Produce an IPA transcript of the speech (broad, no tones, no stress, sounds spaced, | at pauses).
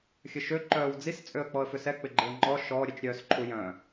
xʲ ə ʃ ø ǃ œː w d͡z i s t͡sʼ ø ə̯ k͡p ɔ ə̯ f ʏ s ɛ k͡p ɪ ɡ͡ǃ e ə̯ ŋ͡ǃ ɔ ʃ ɔ ɾʲ ɛ t͡ʃ ɾʲ œː s ǃʰ u j œ̃